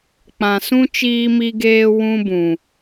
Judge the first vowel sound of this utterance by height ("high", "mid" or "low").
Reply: low